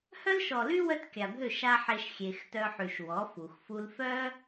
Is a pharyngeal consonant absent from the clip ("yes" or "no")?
no